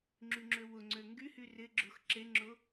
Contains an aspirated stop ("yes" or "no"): no